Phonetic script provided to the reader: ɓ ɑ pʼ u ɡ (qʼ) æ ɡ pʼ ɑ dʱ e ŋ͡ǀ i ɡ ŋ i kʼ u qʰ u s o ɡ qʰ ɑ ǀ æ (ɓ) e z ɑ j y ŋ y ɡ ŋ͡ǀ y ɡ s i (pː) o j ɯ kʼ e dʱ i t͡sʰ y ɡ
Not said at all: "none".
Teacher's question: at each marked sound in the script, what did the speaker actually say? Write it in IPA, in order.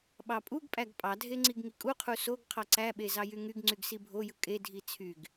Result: pʼ, ɓ, bʱ

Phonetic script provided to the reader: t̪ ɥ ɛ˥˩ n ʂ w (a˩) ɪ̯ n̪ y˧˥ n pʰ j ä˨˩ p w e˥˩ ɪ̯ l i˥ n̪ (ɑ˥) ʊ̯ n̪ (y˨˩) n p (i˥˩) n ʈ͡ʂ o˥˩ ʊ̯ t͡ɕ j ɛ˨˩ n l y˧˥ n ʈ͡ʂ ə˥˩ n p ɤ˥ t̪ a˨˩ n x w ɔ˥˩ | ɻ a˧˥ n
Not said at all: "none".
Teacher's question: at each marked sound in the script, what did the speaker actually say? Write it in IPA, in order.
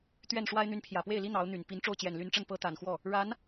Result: a˥, ɑ˧˥, y˨˩, i˧˥

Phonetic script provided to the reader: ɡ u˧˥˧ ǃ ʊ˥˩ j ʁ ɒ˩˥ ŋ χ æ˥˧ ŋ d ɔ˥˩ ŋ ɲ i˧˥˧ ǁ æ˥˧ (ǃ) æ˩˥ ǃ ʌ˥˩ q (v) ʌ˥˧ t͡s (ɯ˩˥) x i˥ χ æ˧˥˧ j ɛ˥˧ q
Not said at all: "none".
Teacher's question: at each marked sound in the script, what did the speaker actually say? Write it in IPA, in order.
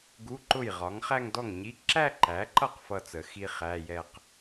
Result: ǃ, f, ə˩˥

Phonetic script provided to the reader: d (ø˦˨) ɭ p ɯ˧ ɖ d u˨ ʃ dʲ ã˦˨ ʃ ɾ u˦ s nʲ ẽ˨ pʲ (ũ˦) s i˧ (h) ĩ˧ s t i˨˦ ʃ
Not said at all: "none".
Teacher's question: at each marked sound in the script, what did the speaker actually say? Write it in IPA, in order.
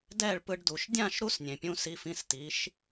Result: ɛ˦˨, ũ˧, f

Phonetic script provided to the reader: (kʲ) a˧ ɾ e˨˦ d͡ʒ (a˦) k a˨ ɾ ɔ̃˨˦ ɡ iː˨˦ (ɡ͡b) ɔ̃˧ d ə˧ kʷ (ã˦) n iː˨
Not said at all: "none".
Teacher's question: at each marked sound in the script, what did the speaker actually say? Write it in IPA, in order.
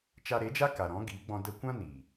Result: t͡ʃ, a˦, ɡ͡b, ã˦

